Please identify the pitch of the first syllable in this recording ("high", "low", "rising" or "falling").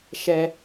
low